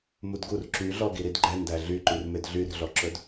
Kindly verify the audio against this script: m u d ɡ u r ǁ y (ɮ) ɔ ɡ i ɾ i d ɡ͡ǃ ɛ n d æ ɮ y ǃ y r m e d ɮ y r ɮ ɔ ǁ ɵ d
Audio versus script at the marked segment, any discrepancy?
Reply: no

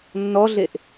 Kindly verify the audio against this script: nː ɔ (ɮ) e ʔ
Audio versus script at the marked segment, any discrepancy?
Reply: no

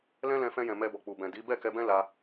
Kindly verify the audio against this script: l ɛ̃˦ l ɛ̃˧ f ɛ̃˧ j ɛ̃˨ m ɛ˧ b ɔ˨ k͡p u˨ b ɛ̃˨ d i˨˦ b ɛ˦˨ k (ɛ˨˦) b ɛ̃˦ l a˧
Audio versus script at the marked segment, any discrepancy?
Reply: yes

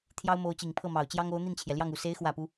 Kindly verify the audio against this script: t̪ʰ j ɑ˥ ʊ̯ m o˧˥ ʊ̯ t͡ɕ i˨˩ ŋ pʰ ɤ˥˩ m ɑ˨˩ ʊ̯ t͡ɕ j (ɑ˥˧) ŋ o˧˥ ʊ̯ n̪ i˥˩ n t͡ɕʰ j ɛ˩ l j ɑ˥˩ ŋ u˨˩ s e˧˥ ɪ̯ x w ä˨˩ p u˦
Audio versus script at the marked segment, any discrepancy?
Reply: yes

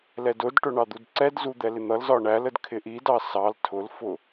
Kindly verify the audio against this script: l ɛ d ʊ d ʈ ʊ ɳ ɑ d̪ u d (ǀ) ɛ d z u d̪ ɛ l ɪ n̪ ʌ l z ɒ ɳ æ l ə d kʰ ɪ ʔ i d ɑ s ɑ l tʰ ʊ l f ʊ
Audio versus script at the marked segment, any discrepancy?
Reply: no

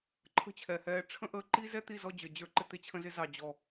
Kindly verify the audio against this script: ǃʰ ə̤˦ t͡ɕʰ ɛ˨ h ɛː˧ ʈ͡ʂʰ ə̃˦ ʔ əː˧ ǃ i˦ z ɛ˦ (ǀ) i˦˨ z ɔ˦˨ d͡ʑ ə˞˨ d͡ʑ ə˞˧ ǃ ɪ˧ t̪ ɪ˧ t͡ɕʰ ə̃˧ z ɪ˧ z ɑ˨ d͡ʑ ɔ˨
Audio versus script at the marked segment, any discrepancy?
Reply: yes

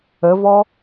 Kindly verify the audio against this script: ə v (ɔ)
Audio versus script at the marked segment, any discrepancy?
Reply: no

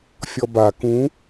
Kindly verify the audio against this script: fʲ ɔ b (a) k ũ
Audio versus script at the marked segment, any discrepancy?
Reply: no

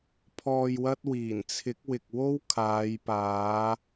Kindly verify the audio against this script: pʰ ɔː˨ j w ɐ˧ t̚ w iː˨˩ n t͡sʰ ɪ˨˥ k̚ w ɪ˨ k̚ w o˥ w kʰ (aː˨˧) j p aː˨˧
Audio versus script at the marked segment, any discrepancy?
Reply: no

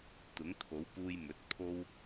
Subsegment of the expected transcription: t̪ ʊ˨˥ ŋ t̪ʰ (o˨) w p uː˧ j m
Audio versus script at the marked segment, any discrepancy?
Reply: yes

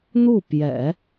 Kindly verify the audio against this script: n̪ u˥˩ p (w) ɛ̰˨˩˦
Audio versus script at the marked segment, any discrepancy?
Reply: yes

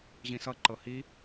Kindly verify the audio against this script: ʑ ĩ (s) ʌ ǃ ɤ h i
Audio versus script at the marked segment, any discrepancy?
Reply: no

